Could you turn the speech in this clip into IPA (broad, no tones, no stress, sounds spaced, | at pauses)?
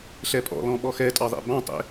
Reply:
ɬ ɛ pʼ ɔ̰ l ɔ̃ ɓ ɔ x ɛ tʼ ɑ ðˤ ḛ b ɑ̃ tˤ ḛ